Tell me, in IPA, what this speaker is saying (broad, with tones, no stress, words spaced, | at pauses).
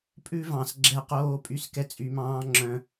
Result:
pʼʉ˦vɑ̃˨s ɡ͡ǁɛ˦qoː˦pʼy˦s kɛ˦t͡sʼy˨mɑ̃ː˦ ŋ͡ǁœ̃˦